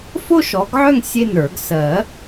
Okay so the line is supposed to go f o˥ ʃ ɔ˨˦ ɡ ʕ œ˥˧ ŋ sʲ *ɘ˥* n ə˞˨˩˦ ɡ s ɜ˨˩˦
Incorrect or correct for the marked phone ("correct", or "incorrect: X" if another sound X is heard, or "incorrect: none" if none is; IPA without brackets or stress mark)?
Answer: incorrect: e˥